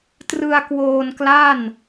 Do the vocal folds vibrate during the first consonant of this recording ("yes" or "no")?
no